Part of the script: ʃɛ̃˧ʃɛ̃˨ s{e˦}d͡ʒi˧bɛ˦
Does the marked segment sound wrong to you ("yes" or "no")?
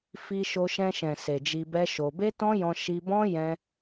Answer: yes